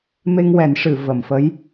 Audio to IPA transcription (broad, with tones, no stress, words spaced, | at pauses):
me˧ŋwɛ˨˩˦nʂɨ˨˩˨ və˨˩˨mfə˧˥j